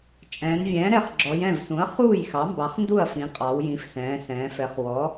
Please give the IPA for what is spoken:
t͡ʃʼ ɛ̃ː˩˧ n vʲ ɛ̃ː˩˥ ɾ ɛ˩˥ χ ɡ͡ǁ ɔ˩˧ j ɛ̃˥˩ v s ũ˩˥ ɐ̯ χ uː˥˩ j x ɑ˩˥ m b ɑ˩˥ χ n d u˥˩ ɐ̯ f ĩ˩˧ qʼ ɑ˩˧ w j ĩ˩˥ f s ɛ̃ː˩˧ s ɛ̃ː˩˧ f ɛ˩˧ χ w ɔ˩˥

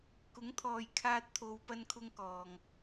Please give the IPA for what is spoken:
k ʊ˨˥ ŋ t̪ʰ ɔː˨ j kʰ aː˧ t̚ t̪ʰ o˨ w p ɐ˥ n kʰ ʊ˥ ŋ k ɔː˨ ŋ

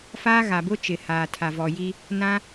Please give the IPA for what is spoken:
f aː˦ ɣ a˨ b ʊ˦ t͡ʃ ɪ˨ h aː˨ tʰ a˨ v ɔ˨ j i˦ | n ã˦

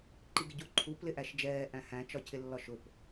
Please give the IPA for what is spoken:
ǃ i ɡ ɪ ɟ u ǃʰ u p l ɪ ʔ æ ʃ d͡ʒ ɛː ʔ æ̃ h æ̃ t͡ʃ ɒ cʰ ɪ lː ɒ ʃ ʊ p

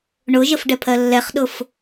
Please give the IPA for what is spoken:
ɳ ʊ ʒ ə f ɖ ɛ pʰ ɜ lː ɛ χ ɗ ʊ f

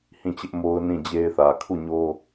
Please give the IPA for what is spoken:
h ĩ˦˨ t͡ɕ ɪ˦ ʔ m o˦ ʊ̯ n ĩ˦˨ d͡ʑ e˦ ɪ̯ θ ä˨ kʰ u˦˨ ɲ o˦

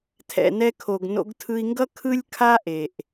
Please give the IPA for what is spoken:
tʰ ɛ̰˨ n ɛ˧ kʰ o˨ ɡ n o̰˧ ɡ tʰ ɯ˧ i̯ ŋ ɡ ʌ˦ kʰ ɯ˦ lʲ kʰ a˦ ʔ e˨ ʔ

